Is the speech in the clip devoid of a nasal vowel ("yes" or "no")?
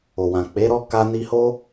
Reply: no